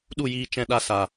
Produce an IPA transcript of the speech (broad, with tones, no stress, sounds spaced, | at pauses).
ɗ u˦˨ j iː˧ t͡ʃ ɛ̃˧ ɗ a˧ s a˨